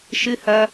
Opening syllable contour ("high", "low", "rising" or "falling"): low